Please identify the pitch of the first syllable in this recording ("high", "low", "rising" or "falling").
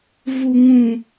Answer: high